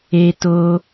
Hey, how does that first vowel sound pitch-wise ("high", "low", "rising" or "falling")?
high